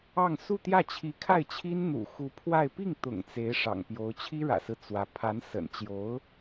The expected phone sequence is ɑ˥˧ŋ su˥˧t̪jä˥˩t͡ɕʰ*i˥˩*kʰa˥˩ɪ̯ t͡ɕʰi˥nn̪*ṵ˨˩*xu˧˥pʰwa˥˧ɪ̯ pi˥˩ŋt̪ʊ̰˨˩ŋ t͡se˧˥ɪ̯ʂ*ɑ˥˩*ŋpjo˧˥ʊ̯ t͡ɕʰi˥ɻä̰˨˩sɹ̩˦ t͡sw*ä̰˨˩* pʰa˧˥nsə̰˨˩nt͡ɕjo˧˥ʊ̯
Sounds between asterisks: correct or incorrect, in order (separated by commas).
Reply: incorrect, correct, incorrect, incorrect